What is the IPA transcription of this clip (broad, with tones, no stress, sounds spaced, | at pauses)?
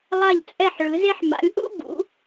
lˠ a˧˩ ʎ t͡sʼ ɛ˧˩ ħ ɭ ɯ˩˧ z e˧ ħ m a̰˩˧ lʲ ʔ ṵ˥˧ b ṵ˩˧